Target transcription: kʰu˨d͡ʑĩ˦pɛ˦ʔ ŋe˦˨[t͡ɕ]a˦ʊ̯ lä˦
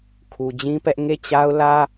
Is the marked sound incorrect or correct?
correct